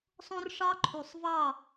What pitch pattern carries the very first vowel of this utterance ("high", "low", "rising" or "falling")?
high